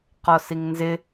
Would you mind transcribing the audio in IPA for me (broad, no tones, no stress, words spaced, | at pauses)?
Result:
qɔsiŋnzɪ